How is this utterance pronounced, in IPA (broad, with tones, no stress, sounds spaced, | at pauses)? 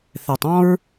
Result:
θ ɛ˨ tˤ ɔ̃˦ ɹ